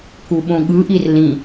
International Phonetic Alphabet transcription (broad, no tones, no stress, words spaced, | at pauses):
kuɓõɠɯʔir lĩ